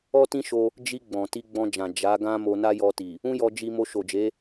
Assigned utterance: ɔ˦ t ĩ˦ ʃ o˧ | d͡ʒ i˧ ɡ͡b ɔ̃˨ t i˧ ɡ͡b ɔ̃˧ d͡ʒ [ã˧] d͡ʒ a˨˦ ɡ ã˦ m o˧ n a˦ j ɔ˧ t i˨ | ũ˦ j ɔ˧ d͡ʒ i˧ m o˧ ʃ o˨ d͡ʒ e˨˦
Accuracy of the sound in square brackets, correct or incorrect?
incorrect: ã˨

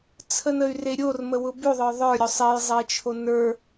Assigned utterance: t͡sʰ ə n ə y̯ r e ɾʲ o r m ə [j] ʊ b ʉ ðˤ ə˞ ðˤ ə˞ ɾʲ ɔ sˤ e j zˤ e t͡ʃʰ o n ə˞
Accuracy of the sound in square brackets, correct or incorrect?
incorrect: w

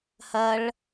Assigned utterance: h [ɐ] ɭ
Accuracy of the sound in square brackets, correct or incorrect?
correct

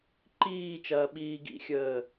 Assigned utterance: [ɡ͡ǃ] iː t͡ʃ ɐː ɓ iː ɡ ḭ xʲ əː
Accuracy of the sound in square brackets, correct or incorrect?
incorrect: ǃ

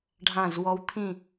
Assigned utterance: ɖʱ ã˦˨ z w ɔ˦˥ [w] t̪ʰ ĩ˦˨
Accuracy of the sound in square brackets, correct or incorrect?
correct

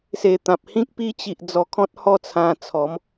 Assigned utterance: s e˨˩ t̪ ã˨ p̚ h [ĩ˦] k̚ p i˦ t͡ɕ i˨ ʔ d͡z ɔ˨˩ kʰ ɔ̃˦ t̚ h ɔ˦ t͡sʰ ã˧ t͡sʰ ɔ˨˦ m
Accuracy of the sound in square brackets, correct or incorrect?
correct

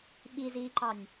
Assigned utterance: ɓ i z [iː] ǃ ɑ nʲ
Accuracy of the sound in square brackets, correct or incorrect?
correct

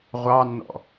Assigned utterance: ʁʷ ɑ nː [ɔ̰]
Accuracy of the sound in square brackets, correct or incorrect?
correct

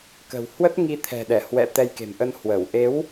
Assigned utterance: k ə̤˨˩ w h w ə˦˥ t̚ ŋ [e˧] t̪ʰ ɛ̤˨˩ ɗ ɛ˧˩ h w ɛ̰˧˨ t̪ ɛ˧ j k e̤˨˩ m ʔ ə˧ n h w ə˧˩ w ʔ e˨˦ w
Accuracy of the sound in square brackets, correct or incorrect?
incorrect: i˧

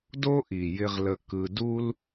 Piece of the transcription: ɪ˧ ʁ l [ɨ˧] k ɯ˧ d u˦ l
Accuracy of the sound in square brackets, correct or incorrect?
incorrect: ə˧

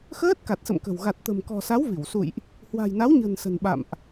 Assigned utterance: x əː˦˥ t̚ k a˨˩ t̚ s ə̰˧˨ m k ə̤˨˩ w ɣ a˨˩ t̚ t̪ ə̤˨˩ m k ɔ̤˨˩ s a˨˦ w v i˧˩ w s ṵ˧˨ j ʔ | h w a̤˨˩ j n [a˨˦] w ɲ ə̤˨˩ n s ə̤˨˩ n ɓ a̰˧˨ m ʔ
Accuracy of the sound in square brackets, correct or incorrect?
correct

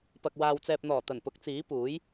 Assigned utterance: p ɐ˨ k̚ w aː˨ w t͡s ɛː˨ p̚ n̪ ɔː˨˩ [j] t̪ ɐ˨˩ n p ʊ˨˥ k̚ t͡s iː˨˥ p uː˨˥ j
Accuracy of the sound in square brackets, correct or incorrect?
incorrect: none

